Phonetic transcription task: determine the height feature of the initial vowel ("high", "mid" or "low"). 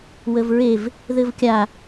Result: mid